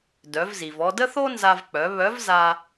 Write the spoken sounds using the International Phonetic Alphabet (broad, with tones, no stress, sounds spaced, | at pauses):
d œ˩˧ v z i˩ v ɔ˧ d ə˥ θ o˥ n z a˧ v k͡p œ˩˧ β œ˧˥ v z a˧